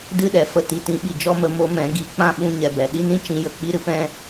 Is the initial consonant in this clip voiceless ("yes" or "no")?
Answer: no